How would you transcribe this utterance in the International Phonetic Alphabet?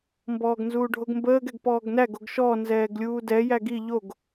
mbɔːɡnzuːɖʱoɡmbəːɡ ɛɡpɔːɡnæɡ oɡʃɔ nzɛːɡlʲuːdɛ jæɡi ʎoɡ

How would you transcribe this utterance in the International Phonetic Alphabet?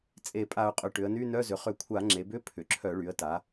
t͡sʼe˧˩˧pʼa˧˩˧ʊ̯qʼʏ˩˧ ʈʏ˩˧ə̯ny˧˥˧nœ˧˥˧zʏ˩˧ χʏ˧˩˧kʷʰa˧˩˧ ŋ͡ǁe˩˧bʏ˧˥˧ pʰʏ˩˧ǁʰœ˧˩˧ɭy˩˧ə̯ta˩˧

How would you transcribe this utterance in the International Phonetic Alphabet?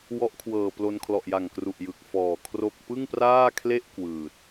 wɔ˦˥ʔkʰwɤː˨˩ plo˧nkʰlɔ˨˩ʔja˨˩ŋkru˨˩ʔ jɯ˨˩k̚fɔː˨˩kʰro˥˩k̚ pɯ˥˩ŋpraː˥˩kʰle˥˩ʔ kwɯː˨˩t̚

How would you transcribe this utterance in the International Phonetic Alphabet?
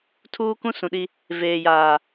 tʰuː˦kũ˦sũ˨ɗi˦ | veː˨jaː˨

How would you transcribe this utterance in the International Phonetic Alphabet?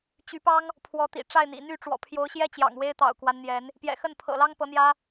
t͡ɕy˨˦pɑ˦ŋ | pʰwɔ˨˦t̪ḭ˨˩ ʈ͡ʂa˥˨ɪ̯n̪ḭ˨˩ n̪y˥˨ʈ͡ʂwɔ̰˨˩pʰjo˨˦ʊ̯ɕjɛ˦ t͡ɕjɑ̰˨˩ŋwe˦ɪ̯t̪ɑ̰˨˩ʊ̯kwa˦n n̪jɛ˨˦n | pjɛ̰˨˩xə˥˨npʰɤ̰˨˩lɑ˦ŋ pɤ˨˦n̪jä˦

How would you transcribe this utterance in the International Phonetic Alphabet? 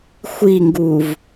xʷiŋɡuːv

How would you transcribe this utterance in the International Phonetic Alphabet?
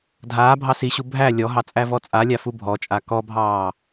dʱaːbʱɑ siɕu bʱæ lʲɔɦɑ t͡sʼævɔt͡sʼalʲa fubʱɔt͡ʃʼa kɔbʱɑː

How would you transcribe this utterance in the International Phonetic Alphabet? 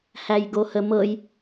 hæjɡohəmɤj

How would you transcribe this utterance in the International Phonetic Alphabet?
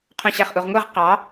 qʰõɕæχʔuʁŋʷeʁ qɑ

